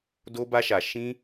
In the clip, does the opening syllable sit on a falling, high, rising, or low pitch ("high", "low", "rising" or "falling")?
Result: high